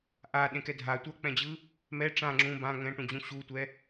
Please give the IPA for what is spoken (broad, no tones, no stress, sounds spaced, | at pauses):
ʔ a ɗ ẽ k ɛ dʱ a tʷ ʌ k͡p ɛ̃ d͡ʑ ɯ | m ɛ ʈ͡ʂ ã ŋ͡ǁ ũ b ã ŋ ɛ̃ ʈ ũ d͡ʑ ũ ɕ u tʷ ɛ